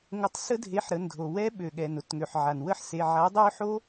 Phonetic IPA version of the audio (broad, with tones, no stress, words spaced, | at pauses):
ŋʊ˨˥tˤsə˦˥dʱe˨˥ħɾə˩˧˩n dʱo˩wɛ˦˥ ɓø˩ɠɛ˩n ʊ˦˥tŋø˩ħ ʕa˩nwə˦˥ħse˩˧˩ ʕa˨˥dˤø˦˥ħo˦˥